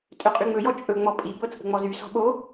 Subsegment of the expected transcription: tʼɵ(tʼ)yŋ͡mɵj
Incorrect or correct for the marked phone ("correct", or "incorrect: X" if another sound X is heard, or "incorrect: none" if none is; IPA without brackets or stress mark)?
incorrect: qʼ